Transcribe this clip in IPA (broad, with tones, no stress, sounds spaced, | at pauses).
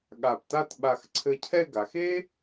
ɠ a˧˩ p t a˥˧ t ɓ a˧˩ x ǀʰ ɘ˧ cʰ ɛ˥˧ ɡ a˩˧ x e˥